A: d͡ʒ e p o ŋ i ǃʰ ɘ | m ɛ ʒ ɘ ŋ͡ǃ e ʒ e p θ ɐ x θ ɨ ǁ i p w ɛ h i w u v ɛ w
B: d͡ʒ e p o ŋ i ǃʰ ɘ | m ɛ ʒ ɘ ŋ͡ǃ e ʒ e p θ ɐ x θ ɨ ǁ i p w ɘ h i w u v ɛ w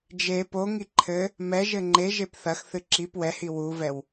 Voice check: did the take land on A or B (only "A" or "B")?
A